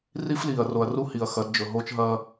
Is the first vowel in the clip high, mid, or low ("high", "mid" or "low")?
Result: high